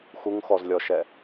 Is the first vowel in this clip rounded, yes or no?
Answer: yes